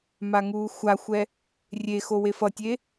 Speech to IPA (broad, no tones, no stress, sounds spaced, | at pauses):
m a ŋ uː xʷ a xʷ ɛ | rʲ e x o w e f ʌ tʲ e